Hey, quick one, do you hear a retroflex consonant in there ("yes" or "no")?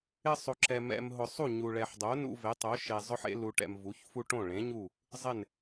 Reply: yes